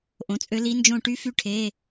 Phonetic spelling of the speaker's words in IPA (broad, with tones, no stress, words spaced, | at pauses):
ʔõ˩˧˩t͡sʼø˧˥ li˧˥nd͡ʒõ˦˨ ʈy˧˥fy˧˥ʈʰe˩˧˩